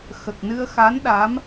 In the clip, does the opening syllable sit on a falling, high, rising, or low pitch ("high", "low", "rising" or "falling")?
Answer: low